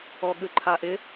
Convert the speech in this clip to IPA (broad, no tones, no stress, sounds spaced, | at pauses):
ɔ ɠ ʉ ǃʰ a ʔ ɪ